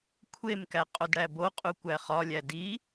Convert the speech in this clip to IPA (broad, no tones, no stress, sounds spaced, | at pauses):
kʷʰ e m k æ qʼ o d ɽ æ b o qʼ u kʷ æ χ ɒ lʲ æ d i